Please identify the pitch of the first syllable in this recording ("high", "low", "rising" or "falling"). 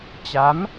rising